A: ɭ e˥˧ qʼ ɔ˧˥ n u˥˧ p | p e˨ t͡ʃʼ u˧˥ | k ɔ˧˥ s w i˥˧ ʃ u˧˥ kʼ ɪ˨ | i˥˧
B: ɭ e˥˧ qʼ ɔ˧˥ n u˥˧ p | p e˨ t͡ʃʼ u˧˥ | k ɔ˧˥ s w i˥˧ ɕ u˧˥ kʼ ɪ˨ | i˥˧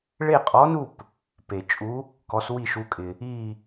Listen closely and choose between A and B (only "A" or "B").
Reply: A